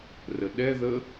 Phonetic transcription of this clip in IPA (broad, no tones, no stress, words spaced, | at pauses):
rəɗɛðə